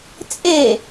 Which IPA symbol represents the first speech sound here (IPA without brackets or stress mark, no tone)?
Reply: t͡sʼ